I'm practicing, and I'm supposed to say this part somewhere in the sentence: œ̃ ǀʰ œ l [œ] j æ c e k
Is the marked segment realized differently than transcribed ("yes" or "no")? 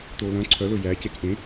yes